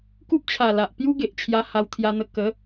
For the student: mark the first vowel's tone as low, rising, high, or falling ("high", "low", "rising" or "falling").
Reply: high